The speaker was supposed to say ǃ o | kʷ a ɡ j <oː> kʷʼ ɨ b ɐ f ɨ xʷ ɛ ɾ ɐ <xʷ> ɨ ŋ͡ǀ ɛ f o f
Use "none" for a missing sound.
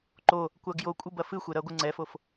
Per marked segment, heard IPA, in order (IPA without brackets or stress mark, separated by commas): o, ɡʷ